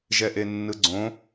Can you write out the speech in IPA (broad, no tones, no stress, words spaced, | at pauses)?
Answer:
ʒɛʔenːɯɡ͡ǀõ